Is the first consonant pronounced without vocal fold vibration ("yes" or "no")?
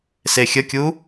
yes